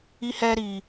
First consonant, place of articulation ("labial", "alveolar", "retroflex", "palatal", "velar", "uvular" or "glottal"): glottal